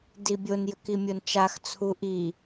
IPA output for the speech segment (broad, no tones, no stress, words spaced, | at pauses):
dibʲonjəki mʲont͡ʃaxt͡sʰu ʔi